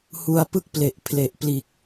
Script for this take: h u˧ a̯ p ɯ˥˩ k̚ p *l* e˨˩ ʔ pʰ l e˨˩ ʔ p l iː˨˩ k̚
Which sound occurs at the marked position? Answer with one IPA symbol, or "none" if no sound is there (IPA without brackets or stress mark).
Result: l